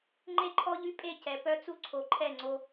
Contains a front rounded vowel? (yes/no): yes